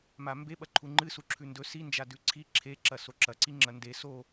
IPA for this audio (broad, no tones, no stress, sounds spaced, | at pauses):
m a m b e ɓ ɐ ǃʰ u ŋ͡ǃ ɨ s u ǁʰ ʉ n d ɵ s i n d͡ʒ a d ʉ ǀʰ i ǁʰ e ǁ ɐ s o ǁ ɐ ǀ i ŋ͡ǁ ɐ n d e s o